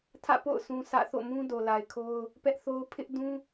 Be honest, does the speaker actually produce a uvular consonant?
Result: no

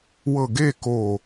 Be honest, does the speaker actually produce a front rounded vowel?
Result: no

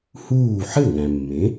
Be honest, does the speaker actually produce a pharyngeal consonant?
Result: yes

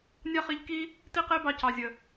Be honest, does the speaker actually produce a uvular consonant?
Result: yes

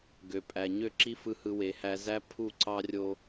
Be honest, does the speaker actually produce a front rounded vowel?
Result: yes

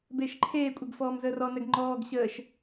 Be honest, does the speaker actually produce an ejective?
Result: yes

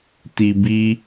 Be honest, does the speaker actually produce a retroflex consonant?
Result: no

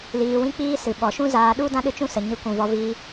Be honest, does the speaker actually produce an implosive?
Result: yes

